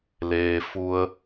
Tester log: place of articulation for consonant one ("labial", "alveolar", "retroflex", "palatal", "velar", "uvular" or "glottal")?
alveolar